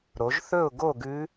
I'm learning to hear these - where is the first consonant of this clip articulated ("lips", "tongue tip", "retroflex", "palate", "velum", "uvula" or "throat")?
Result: tongue tip